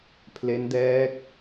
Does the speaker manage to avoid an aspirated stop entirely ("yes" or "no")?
no